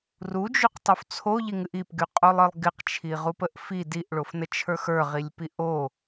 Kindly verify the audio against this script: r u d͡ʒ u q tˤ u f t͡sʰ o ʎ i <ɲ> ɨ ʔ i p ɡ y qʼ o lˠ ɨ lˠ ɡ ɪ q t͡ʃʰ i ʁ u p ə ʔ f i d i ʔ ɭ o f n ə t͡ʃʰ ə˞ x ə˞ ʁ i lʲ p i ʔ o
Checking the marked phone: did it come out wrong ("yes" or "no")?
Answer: yes